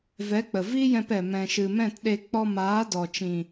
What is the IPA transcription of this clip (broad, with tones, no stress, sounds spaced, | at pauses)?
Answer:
v ɛ˨˦ k͡p ə˨ v i˦ j ɛ̃˧ p ɛ˨ m ɛ̃˨ ʃ ɨ˨ m ɛ̃˦˨ t ɗ e˧ k͡p ɔ˧ m aː˨˦ d ɔ˨ t͡ʃ ĩ˨